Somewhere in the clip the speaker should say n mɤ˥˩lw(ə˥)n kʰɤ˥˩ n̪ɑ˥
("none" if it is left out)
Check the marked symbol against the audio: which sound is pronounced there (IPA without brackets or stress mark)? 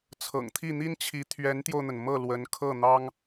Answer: ə˧˥